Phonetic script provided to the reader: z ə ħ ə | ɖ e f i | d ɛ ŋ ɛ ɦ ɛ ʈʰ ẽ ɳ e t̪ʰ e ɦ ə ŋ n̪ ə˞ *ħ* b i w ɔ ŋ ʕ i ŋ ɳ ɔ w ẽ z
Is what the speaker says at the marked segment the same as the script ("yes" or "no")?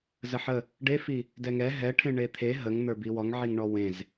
no